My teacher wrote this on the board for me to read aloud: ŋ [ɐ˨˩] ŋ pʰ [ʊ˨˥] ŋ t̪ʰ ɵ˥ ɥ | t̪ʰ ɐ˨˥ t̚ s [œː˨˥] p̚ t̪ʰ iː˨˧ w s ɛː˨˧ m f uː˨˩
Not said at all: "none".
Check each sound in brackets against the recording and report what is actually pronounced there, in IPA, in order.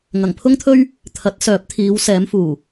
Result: ɐ˨˩, ʊ˥, œː˨˥

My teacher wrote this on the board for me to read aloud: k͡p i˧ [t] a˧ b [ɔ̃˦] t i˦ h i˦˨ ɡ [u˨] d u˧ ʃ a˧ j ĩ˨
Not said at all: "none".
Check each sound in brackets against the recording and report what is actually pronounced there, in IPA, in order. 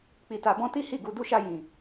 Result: t, ɔ̃˦, u˧

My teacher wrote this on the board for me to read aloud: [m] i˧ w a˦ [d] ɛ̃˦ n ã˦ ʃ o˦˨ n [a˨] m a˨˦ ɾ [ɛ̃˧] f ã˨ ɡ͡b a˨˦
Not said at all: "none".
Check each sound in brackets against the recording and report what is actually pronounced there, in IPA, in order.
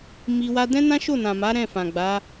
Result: m, d, ã˨, ɛ̃˦˨

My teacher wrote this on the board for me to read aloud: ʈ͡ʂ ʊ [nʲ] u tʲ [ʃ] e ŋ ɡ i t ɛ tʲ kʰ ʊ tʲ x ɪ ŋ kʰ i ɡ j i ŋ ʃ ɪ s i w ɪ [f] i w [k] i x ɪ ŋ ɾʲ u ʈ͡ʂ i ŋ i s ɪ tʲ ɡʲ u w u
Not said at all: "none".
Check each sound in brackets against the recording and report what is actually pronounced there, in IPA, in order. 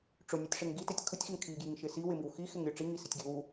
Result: nʲ, ʂ, m, x

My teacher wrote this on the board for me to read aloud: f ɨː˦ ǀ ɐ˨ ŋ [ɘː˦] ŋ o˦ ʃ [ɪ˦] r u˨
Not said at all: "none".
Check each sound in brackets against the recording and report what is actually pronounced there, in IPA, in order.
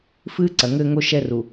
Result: ɘː˦, ɛ˦

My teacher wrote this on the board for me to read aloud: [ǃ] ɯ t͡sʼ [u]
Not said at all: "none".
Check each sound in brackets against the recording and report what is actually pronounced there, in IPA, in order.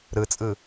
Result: ɾ, ɯ

